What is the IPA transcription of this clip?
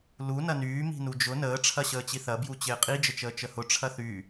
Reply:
lu nɐnyː mi̤nud͡ʒʊ nəː ʈ͡ʂʰɐɕəːt͡ɕiθɐ bjut͡ɕɪːqʼi d͡ʒət͡ʃəːt͡ʃəhʊ ʈ͡ʂʰɐθy

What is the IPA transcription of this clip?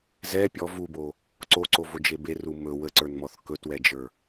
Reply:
zɛ pʲɔ vubo | ǀoǀovod͡ʒe beru mɵ wəǀə˞nmɔθ kɵtwɛd͡ʒə˞

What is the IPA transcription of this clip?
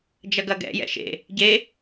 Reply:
d͡ʒɐɡɐɡɛ̰ jɛ̰ʃḛ | ɟe

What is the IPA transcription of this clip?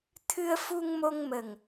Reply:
t̪ʰɨ˧ə̯fu˧ŋmo˧ŋmə˨˩ŋ

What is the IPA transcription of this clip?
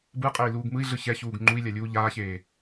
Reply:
bɯqʼei̯ luːɡmɯi̯ɮɯ çɛçuːɡ ŋ͡ǃui̯lʲa lʲuːʎaːçeː

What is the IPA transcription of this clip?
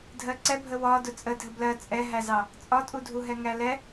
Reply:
dʱɜǀɛbʱə wɒ dʊt͡sʼədʱə blɜ t͡sʼɛɦæzɑ | t͡sʼɒtʼudʱuɦɛ ŋælɛ

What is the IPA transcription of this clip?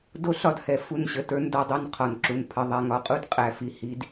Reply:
do˦ɬɒ˦dhɛ˨ fu˦˨nɕə˨tə˞˦n dɒ˦dˤu˦˨n qʰɒ˨nǁu˨n pʰə˨ ðˤɛ˨ŋɒ˨qʼu˦d qʼæ˨fi˨ hi˦d

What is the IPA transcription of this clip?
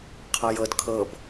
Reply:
qʰɤjɤd kʰɤb

